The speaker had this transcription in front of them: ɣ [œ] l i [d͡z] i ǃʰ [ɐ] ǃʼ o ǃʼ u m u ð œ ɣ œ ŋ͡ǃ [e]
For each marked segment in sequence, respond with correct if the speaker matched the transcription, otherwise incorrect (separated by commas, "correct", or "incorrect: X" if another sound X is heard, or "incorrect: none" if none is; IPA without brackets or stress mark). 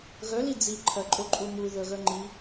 correct, correct, correct, incorrect: i